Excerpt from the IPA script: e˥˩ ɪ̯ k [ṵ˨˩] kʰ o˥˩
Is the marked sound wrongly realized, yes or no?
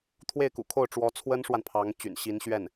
no